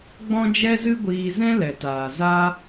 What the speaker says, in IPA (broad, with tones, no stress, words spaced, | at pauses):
ɡ͡bɔ̃˦d͡ʒɛ˦zɨ˦ɡʷiː˧ zɛ̃˦lɛ˨taː˨ za˦